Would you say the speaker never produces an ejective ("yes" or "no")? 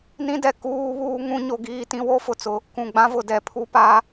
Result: yes